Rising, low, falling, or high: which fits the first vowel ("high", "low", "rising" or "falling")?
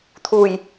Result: low